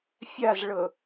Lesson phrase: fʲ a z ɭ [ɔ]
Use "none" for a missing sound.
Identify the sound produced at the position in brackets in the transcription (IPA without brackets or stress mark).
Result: ɤ